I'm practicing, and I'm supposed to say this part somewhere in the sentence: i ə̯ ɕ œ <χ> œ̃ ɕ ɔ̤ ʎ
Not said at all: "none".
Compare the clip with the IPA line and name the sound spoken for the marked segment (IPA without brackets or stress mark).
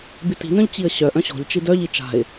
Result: ʔ